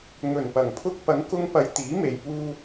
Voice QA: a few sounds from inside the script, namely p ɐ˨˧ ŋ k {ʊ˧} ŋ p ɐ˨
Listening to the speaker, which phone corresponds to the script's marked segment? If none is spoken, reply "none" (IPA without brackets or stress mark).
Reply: ʊ˧